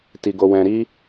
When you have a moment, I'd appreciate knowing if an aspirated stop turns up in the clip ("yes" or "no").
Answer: no